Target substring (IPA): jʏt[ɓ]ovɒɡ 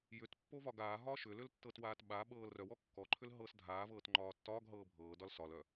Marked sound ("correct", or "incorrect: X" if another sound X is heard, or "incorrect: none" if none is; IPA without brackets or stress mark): incorrect: pː